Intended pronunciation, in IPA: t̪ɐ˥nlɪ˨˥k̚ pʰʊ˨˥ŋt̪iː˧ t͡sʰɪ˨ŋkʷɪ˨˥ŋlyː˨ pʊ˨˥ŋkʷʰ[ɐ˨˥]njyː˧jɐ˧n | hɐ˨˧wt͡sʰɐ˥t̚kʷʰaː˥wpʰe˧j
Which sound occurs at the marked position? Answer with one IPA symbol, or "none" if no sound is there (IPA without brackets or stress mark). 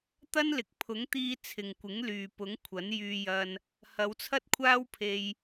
ɐ˨˥